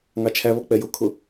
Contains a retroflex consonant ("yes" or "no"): no